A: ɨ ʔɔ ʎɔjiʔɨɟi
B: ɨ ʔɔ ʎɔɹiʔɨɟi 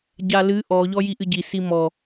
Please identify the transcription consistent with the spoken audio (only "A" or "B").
A